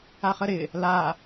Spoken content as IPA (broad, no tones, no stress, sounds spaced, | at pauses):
a χ ə ɾ ɪ | l a